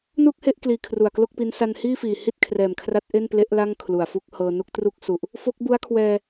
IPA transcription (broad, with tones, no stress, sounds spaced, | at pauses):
n uː˥˩ k̚ h e˥˩ ʔ k l iː˧ kʰ r u˨˩ a̯ k l o˥˩ k̚ p i˦˥ n s a˧ n h iː˥˩ f iː˨˩ h i˥˩ t̚ kʰ r ɛː˨˩ m kʰ r a˦˥ t̚ ʔ e˥˩ n p l e˦˥ ʔ l a˥˩ ŋ kʰ l u˨˩ a̯ f u˥˩ k̚ h ɤː˧ n u˥˩ k̚ t r u˦˥ k̚ s u˨˩ ʔ | f o˦˥ k̚ b u˦˥ a̯ kʰ w ɛː˧